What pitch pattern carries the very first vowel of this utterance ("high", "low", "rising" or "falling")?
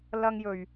high